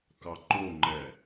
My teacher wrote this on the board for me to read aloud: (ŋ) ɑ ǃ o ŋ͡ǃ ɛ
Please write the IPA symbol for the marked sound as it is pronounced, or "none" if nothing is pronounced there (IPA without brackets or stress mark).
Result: k